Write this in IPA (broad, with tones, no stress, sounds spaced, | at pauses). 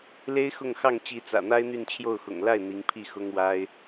l e˥ ɪ̯ x ʊ˥˧ ŋ x ɑ˥˩ ŋ t͡ɕ i˧˥ t͡s ä̰˨˩ n̪ a˥ ɪ̯ n̪ y˥˧ n t͡ɕʰ j o˥˩ ʊ̯ x ʊ̰˨˩ ŋ l a˥˩ ɪ̯ n̪ i˧˥ ŋ pʰ i˥˩ x ʊ˥ ŋ w a˥ ɪ̯